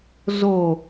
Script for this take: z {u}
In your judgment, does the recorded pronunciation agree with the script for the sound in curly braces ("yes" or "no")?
no